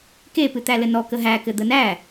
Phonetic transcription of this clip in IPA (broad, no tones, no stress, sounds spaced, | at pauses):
k e p ɨ t̪ æ l ɘ n ɔ k ə ɦ æ k ɘ d̪ ə n æ